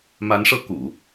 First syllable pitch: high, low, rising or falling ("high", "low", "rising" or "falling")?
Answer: rising